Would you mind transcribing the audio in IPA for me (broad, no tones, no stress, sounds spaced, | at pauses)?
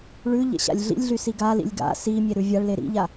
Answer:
ɭ ʉ ʎ ḛ ɕ a̰ lʲ ɮ ḭ lʲ ɮ y s i ɡ a l ḭ lʲ ɡ a̰ s i mʲ e ɾ ʉ vʲ a ɭ l e ɾ ḭ ʎ a